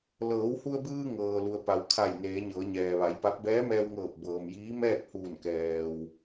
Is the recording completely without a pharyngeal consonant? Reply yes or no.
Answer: yes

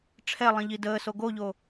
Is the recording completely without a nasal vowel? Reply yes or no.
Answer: no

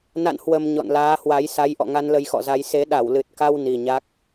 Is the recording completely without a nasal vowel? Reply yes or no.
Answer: yes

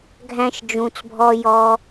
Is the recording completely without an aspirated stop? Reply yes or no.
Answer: yes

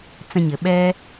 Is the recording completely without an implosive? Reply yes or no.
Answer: no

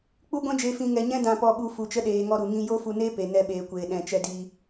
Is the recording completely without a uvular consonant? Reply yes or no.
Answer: yes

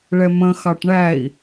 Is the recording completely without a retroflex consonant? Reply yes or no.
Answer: no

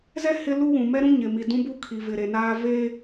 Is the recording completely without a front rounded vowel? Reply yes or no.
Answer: yes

